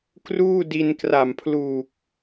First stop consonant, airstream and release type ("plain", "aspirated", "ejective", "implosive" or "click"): plain